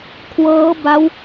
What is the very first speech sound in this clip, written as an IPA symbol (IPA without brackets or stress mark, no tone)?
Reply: kʰ